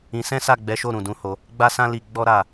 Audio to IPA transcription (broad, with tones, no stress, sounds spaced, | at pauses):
ĩ˧ s ɛ̃˦ s a˦˨ ɡ͡b ɛ˨˦ ʃ o˦˨ ɾ ũ˨ d ũ˨˦ h o˧ | ɡ͡b a˦ s ã˦ l i˧ ɡ͡b ɔ˦ ɾ a˦˨